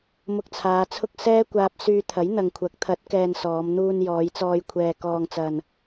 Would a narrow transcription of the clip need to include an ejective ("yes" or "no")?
no